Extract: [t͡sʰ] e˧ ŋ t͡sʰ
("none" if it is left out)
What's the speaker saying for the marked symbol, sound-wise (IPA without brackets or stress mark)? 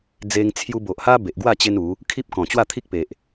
d͡z